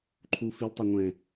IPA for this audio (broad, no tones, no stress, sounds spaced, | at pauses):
ǃʰ u f i l tˤ ɛ ŋʷ ɛ̃